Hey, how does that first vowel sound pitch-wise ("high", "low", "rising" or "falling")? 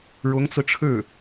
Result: rising